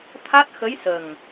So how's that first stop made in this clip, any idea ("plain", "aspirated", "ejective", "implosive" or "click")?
aspirated